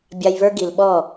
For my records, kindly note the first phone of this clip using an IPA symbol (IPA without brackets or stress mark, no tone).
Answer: bʲ